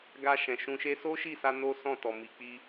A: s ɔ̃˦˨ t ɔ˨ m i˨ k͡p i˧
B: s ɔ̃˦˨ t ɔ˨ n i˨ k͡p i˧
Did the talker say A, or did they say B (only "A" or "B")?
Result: A